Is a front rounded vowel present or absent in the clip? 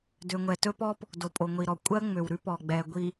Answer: present